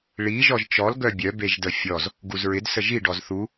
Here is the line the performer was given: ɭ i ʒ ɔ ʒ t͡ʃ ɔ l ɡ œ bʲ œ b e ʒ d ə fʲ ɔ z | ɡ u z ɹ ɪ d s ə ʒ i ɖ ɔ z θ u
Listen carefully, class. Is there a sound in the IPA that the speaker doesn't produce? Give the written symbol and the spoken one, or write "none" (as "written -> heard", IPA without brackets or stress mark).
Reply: none